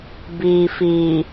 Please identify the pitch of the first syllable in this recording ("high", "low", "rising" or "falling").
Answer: low